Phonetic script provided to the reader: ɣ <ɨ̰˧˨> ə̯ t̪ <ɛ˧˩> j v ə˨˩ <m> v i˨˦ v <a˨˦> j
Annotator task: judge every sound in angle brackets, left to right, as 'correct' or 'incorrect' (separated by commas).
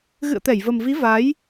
correct, correct, correct, correct